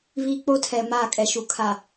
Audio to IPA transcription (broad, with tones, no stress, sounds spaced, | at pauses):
β i˦ k͡p o˦ tʰ ɛ˨ m aː˦˨ kʼ ɛ˨ ʃ u˨ kʰ a˨